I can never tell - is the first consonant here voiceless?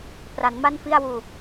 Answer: yes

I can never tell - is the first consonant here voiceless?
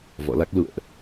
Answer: no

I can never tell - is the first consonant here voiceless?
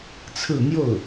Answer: yes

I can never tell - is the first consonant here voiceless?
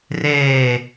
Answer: no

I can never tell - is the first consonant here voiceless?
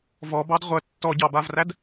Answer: no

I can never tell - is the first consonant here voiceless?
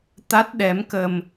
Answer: yes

